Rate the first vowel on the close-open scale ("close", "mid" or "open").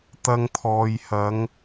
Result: open